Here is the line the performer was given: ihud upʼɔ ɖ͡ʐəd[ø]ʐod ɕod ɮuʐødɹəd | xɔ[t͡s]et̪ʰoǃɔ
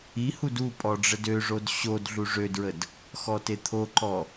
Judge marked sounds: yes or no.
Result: yes, no

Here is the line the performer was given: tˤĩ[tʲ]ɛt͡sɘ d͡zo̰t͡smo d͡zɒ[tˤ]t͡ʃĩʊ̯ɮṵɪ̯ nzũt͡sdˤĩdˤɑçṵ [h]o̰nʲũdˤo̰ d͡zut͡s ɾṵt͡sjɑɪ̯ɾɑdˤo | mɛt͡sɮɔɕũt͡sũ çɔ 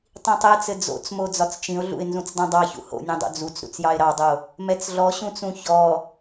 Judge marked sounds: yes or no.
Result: no, no, yes

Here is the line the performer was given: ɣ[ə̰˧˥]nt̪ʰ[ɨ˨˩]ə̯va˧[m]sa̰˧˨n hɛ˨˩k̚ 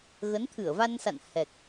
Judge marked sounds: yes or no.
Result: no, no, no

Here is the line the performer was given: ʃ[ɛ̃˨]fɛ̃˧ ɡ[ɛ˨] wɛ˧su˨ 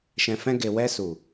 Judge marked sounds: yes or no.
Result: yes, no

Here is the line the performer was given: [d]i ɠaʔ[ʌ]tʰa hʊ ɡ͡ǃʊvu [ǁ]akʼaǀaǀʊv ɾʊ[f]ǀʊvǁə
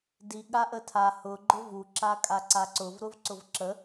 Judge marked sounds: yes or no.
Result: yes, no, yes, no

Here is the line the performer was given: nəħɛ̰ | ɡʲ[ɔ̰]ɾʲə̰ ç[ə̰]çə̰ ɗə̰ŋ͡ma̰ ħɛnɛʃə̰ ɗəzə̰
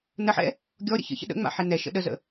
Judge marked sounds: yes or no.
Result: no, yes

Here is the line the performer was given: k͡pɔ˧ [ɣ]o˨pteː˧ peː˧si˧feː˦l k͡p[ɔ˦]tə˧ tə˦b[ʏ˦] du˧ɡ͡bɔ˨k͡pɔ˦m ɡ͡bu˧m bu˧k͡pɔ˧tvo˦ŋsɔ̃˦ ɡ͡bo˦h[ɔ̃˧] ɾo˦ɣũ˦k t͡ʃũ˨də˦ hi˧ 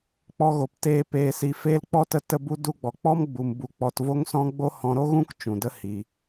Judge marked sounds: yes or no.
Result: yes, yes, no, yes

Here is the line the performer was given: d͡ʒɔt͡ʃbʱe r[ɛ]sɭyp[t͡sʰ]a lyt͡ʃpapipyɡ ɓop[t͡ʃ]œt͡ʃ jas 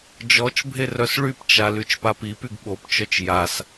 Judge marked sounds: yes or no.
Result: no, no, yes

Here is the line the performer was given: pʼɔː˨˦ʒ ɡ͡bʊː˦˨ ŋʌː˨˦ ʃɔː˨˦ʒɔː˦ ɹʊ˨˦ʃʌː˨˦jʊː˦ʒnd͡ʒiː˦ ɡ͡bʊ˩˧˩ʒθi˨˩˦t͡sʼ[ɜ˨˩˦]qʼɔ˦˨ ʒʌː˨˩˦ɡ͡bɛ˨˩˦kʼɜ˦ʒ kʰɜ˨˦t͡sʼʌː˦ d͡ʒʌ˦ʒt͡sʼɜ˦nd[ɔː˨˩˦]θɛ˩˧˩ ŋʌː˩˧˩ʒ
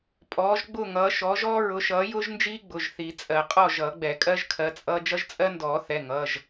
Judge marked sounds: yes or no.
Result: yes, yes

